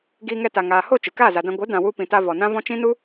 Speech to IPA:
ɡ iː˧ ŋ ɛ˧ t a˨ ŋ aː˨ h o˦˨ t͡ʃ ɨ˨ k aː˦˨ z a˨ d ã˧ ɡʷ ɨ˨˦ d ã˨ w u˧ p ĩ˨ t a˧ v ɔ˨ n ã˦ v ɔ̃˦ t͡ʃ ĩ˦ n u˦

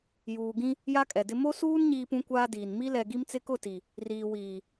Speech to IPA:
j uː˨ ɡ ĩ˦ | j a˦ kʼ ɛ˨ d ɪ˦ m o˦ s uː˦ n ɲ iː˦ p ũ˦ kʷ aː˦ d iː˨ n m i˦ l ɛ˨ ɡ i˦ m t͡s ɪ˦ k ʊ˦˨ t i˨ | r iː˨ w iː˨

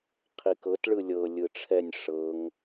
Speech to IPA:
qʰ i k ɤ t ɭ ɯ lʲ ɤ lʲ ɯ ʈ͡ʂʰ ɛ nʲ ʂ ɤ ŋ

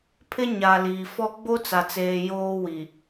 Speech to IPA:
pʰ ɪ˦ ɲ a˨ l iː˨ f ɔ˦ ɡ͡b o˦ t͡s a˨ t͡s eː˨ j oː˦ w i˨

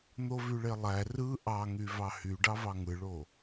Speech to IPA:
n̪ o v y ɭ e lˠ æ r ɯ ʔ ɑ ŋ y v ɑ h y ɖ ɑ v ɑ ŋ ɯ ɭ o

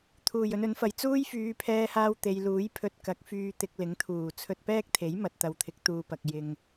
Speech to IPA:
t̪ʰ uː˨˩ j ɵ˧ n ɵ˨˥ n f ɐ˨ j t͡s uː˥ j f yː˨˧ pʰ ɛː˧ h aː˧ w t̪ e˨ j l uː˨˥ j pʰ ɵ˧ t̚ k ɐ˨˥ k̚ f yː˧ t̪ ɪ˧ k̚ l ɪ˨˥ ŋ t̪ʰ uː˨˩ t͡sʰ ɵ˧ t̚ p ɛː˥ k̚ t̪ʰ e˨˥ j m ɐ˨ t̚ t̪ ɐ˨ w t̪ʰ ɪ˨˥ k̚ t̪ uː˧ p ɐ˨ k̚ j ɪ˨ ŋ

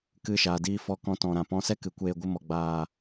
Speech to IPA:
k ɨ˦˨ ʃ aː˨ d iː˧ f ɔ˧ k ɔ̃˧ t ɔ̃˨ ɾ ã˨ p ɔ̃˧ s ɛ˦ k ɨ˨ kʷ eː˧ ɡʷ ɨ˧ m ɔ˨ ɡ͡b aː˨

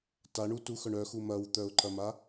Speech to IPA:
t a ɳ u t u x œ ɳ œ x u m ɐ w t̪ œ ʊ̯ ǃ ɐ m a

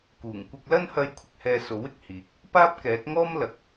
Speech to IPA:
k uː˨˩ ŋ kʷ ɪ˧ k̚ l ɐ˥ n h ɐ˧ j kʷʰ ɪ˨ k̚ h ɛː˧ s o˨˥ w ɪ˧ k̚ h iː˨˥ k̚ | p aː˥ p̚ k ɛː˨˥ t̚ ŋ ɔː˥ m l ɐ˨ k̚

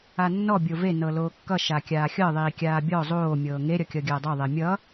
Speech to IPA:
a nː ɔ bʲ o v e n ɤ l oː kː ʌ ʃ a kʲ aː xʲ ɤ ðˤ iː kʲ aː bʲ ɔ zˤ oː mʲ ɤː ŋ e ɾʲ ʌ kʲ ʌ ɡʲ ɐː dˤ ɤ ðˤ e mʲ ʌ

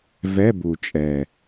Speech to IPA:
v ɛ˧˥˧ b u˨˩ t͡ʃʼ ɛ˨˩

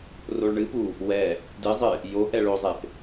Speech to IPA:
r o ɭ ɳ ɨ p u | w ɛ | d ɨ zˤ ɨ | j o ʔ ɛ ɭ o zˤ e p

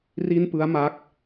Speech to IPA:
r i˥˩ n p ɯ˦˥ a̯ m a˦˥ k̚

